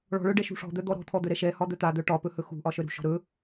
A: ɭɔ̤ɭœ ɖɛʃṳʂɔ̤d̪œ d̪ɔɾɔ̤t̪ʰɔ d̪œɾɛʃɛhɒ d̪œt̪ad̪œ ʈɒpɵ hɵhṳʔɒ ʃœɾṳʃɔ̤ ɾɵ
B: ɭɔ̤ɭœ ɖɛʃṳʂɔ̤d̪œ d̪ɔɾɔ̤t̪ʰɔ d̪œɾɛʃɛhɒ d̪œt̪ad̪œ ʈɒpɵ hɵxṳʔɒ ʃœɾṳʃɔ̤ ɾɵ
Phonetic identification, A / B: B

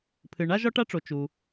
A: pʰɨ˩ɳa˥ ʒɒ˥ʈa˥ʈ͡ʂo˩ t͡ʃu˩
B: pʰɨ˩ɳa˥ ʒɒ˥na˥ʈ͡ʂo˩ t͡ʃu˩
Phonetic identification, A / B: A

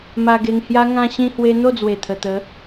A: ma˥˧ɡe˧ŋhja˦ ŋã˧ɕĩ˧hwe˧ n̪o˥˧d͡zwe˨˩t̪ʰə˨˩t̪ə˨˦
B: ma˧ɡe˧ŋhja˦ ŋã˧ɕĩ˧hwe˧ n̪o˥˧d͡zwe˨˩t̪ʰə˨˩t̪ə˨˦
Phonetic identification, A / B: B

